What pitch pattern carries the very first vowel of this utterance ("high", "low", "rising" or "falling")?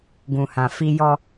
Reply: low